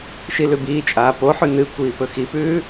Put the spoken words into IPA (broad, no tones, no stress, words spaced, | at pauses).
ʃilʉbiːt͡ʃʼaː poħʉ nɨkʷiː pɵxipʉː